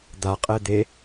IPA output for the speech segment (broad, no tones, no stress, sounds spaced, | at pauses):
d̪ a qʼ ɛ d̪ e